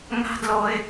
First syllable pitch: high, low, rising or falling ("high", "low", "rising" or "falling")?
high